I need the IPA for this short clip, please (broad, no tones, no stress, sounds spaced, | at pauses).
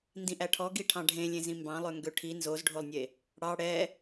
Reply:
n d ĩ ʔ æ ʈʰ ɔ ɡ i ʈʰ ɑ̃ ɖʱ ẽ lʲ ẽ z ĩ m b ɑ̃ lˠ ø ŋ ɡ ø ʈʰ i n z o z ɖʱ o lˠ nʲ e | ɽ ɑ ɽ ɛ